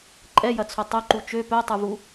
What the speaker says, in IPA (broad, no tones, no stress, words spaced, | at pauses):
ǃʼɛjɐt͡sʰo tˤʊǃu t͡ʃø pœtˤuvu